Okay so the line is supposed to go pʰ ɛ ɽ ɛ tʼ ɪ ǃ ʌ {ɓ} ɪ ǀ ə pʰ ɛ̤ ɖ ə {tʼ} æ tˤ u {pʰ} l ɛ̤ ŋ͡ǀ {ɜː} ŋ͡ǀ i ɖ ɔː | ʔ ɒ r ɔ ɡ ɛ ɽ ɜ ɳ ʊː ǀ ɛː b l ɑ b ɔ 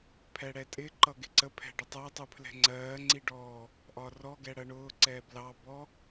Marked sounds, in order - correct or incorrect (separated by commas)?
incorrect, incorrect, correct, correct